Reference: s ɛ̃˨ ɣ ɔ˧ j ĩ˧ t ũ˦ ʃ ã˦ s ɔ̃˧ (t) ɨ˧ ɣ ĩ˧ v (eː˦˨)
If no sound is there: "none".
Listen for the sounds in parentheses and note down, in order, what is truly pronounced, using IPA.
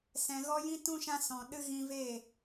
ɗ, eː˦˨

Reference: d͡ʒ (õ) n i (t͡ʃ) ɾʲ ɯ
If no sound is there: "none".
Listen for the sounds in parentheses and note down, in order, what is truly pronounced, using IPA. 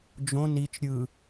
õ, t͡ʃ

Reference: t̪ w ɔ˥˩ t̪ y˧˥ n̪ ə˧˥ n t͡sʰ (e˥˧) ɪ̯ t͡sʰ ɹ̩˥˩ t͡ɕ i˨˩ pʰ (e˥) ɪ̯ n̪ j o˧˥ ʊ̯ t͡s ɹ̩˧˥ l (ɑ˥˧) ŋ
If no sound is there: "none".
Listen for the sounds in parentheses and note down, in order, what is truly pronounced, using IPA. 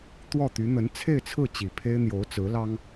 e˥˧, e˥, ɑ˥

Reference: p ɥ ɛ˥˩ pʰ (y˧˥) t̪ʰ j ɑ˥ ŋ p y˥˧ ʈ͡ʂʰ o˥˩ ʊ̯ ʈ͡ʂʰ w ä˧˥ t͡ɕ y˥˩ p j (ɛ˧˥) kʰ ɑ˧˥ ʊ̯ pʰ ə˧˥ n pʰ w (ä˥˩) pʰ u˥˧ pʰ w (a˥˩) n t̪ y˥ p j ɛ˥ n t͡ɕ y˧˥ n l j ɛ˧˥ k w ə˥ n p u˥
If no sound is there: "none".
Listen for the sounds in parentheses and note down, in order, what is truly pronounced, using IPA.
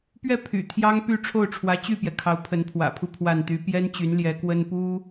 y̰˨˩, ɛ˩, ä̰˨˩, a˥˩

